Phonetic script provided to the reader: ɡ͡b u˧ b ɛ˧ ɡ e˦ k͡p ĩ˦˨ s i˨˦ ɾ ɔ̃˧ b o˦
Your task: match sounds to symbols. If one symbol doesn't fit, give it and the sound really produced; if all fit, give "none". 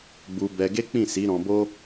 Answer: none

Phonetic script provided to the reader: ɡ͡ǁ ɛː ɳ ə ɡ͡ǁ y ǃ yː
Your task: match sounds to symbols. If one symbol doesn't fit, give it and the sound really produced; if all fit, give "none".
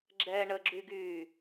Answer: ǃ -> ɡ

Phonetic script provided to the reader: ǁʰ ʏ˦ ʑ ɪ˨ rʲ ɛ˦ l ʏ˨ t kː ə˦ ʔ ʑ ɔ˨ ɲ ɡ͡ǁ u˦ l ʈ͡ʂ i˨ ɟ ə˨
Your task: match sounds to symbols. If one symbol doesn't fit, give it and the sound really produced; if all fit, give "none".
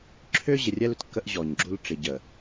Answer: none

